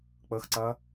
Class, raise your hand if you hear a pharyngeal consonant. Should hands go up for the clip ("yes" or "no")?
no